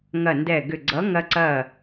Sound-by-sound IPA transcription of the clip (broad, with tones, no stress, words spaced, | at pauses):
ŋɐ˧˩ndɛ˧˩ɡʏ˧˩ɡ͡ǀʌ˨˥ ŋɐ˧ǀɐ˧˩